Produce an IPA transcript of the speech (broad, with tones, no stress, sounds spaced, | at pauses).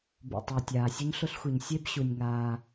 b ṵ˩ tˤ ʊː˩ tʲ aː˩ sʲ ʊ˥ ɲ ɬ ʊ˥ ɬ xʷ i˩ ɲ sʲ e˥ b ɕ u˩ nʲ ŋ aː˩